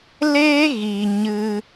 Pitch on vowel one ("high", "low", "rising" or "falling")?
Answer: high